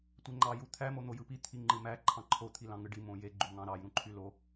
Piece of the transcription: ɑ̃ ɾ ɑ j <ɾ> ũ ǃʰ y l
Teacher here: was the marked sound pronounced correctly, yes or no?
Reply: yes